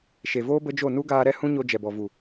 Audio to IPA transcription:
ʃ e˨ v oː˦ b ə˦ d͡ʒ o˦˨ n u˦ ɡ aː˧ ɾ ɛ˦ h ũ˦ ɲ o˧ d͡ʒ ɛ˨ b ɔ˨ v u˨

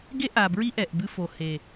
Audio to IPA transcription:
ɡ e˧ ʔ a˨ b ɹ i˦ ʔ ɛ˨ ʔ b ɨ˧ f o˨ h e˨

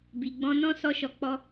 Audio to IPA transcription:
b i˨ ɡ͡b ɔ̃˧ n ɔ̃˦ s ɔ˧ ʃ ɔ˨ k͡p ɔ˧

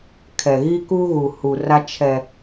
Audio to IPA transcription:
kʰ ɛ˨ ɣ i˦ k u˦ ɣ u˨ h u˨ r a˦ t͡ʃʰ ɛ˦

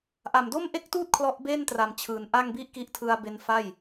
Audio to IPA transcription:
ʔ a˨˩ m d o˥˩ m ʔ e˥˩ k̚ t uː˥˩ t̚ kʰ l ɔ˦˥ ʔ b e˥˩ n t r a˨˩ m t͡ɕʰ ɯː˩˦ n ʔ a˥˩ ŋ b i˥˩ ʔ k i˦˥ ʔ tʰ ɯ˧ a̯ b e˧ n f a˥˩ j

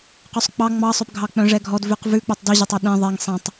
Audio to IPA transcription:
q ʉ sˤ k͡p ɑ ŋ͡m ɑ sˤ ø p ɡʱ ɑ k͡p œ̃ ʐ ɛ ɡʱ ɔ d v ʉ q v ʉ k͡p œ tˤ d ʉ ʑ e tˤ ɔ ɗ ẽ ðˤ ɛ ŋ sˤ ẽ tˤ

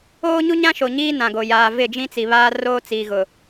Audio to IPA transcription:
oː˦ ɲ u˦ ɲ ã˦ ʃ o˨ ɲ iː˦ n ã˨ ɡ o˨ j aː˨ v ɪ˦˨ d͡ʒ ĩ˦ t͡s i˨ β aː˦ r oː˦ t͡s iː˨ ɣ ʊ˨

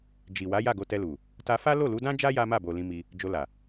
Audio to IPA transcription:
d͡ʒ i˨ w a˨˦ j a˦˨ ɡ o˧ t ɛ˧ l u˨ | t a˧ f a˦ l o˦˨ l u˨˦ d ã˦ d͡ʒ a˦ j a˦ m a˦˨ b o˨ l ĩ˧ m i˧ | d͡ʒ o˧ l a˨

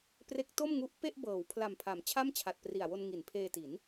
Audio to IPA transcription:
p r e˦˥ k̚ t o˥˩ m ŋ u˦˥ ʔ p e˥˩ ʔ b ɤː˩˦ w pʰ l a˨˩ m pʰ a˩˦ m t͡ɕʰ a˥˩ m t͡ɕʰ a˨˩ t̚ p r i˨˩ a̯ w o˧ n ŋ i˩˦ n pʰ eː˧ t i˩˦ n

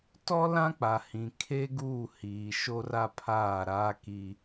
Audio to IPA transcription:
t ɔ˦ l ã˦ k͡p a˨ h ĩ˨ kʰ eː˦ ɡ uː˦˨ h iː˨ ʃ o˦ r a˦ pʰ aː˦˨ ɾ aː˦ k i˦

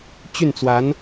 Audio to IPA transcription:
t͡ɕ y˥˩ n t͡s w a˧˥ n

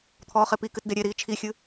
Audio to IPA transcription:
t̪ʰ ɔː χ e p i k ɨ t d e ɾʲ e ɾ iː t͡ʃʰ i xʲ ɨ

